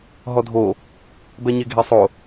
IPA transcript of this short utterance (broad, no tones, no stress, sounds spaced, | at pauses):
ɦ ɔ dʱ o | b ɛ ɲ e ɡʱ e sˤ o